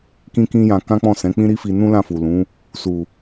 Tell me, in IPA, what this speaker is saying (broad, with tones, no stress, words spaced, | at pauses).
kĩ˧kĩ˧ jã˧kã˦k͡pɔ̃˦˨ sɛ̃˨˦k͡pĩ˦ɾi˦fi˧ nũ˦lã˦˨fu˨ lũ˨˦ | su˨